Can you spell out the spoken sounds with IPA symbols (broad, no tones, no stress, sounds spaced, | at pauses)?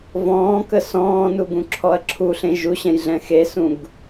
v ɔ̃ː k ə s ɔ̃ː n u ɡ ũ ǁʰ ɔ ɐ̯ ǁʰ u ɬ ẽ ʒ u ɕ ɛ̃ j ɮ ɛ̃ x e s ũ ɡ